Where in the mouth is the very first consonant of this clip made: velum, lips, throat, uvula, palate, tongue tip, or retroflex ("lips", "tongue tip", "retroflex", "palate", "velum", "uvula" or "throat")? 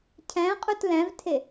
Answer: palate